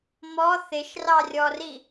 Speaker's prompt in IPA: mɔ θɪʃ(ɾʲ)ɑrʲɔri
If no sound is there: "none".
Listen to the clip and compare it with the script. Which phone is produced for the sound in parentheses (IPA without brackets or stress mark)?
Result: r